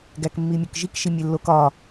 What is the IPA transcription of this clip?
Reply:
ɡ æ k mː i mʲ o k ʒ i k ʃ i mʲ e lː o k ɒ

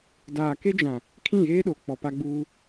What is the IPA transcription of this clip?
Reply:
d aː˨ k e˦ d͡ʒ ã˨ | kʰ ĩ˦˨ ɣ eː˦ ɗ o˨ k͡p ɔ˨ p a˦ ɡ͡b uː˦

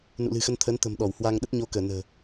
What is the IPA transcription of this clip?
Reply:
n ṵ˧˨ l ɨ̤˨˩ x ə˧ n t̪ʰ əː˨˦ n t̪ ə̤˨˩ m ɗ ɔ˧˩ w h w a˧ ŋ ɗ ə˦˥ t̚ ɲ o˧ k əː˧˩ n ə̤ː˨˩

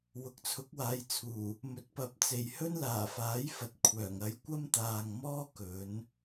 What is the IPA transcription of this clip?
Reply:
w ʊ˨ k̚ t͡sʰ ʊ˨˥ k̚ w aː˨˧ j t͡sʰ uː˨˩ | m ɵ˨ t̚ p ɐ˨˥ p̚ t͡s e˨ j h ɵ˥ n l aː˨˩ f aː˨˥ j f ɐ˨ t̚ kʷʰ œː˨˩ ŋ ɐ˨˧ j kʷ ɐ˥ m t̪ aː˨ ŋ m ɔː˥ k ɵ˨˥ n

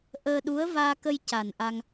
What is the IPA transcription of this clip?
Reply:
ʔ əː˧ ɗ u˧˥ ə̯ v aː˧ k ə˧ j c a˨˩ n ʔ a˧ ŋ

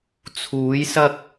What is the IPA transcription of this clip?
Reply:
t͡sʰ uː˨˧ j s ɐ˧ k̚

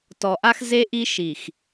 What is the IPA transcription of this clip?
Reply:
t ɔ˨ ʔ a˦ x z e˦ ʔ i˦ ʃ i˨ x

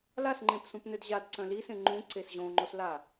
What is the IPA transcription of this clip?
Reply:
l a s ŋ͡ǃ ẽ p s ũ p n ø d ʑ a d ǀ œ̃ l i s ẽ ŋ͡ǃ ũ ǀ e s ʑ õ ŋ͡ǃ o s l a

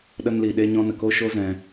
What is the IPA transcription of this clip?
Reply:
ɗ ə˦ n l i˧ ɗ e˦ ɲ ɔ̃˧ n ə˨ k o˦ ʃ o˦ z ɛ̃˦

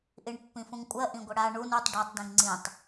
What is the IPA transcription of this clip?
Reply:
ʔ i ɳ pː ĩ f ũ ŋ kʷʼ ɜ ʔ ĩ ɡʷ ə ɽ a ɳ u n u tˤ ɖ ɜ tˤ d ĩ ŋ ŋ͡ǀ ĩ tˤ

